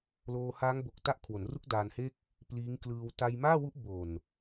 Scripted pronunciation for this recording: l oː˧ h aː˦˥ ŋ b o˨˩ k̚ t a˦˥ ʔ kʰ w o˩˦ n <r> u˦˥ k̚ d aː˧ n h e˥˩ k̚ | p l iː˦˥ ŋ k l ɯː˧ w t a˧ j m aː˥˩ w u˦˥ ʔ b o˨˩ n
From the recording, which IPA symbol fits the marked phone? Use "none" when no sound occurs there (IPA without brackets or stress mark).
r